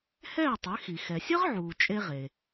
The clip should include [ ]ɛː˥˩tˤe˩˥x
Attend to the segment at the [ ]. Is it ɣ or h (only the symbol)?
h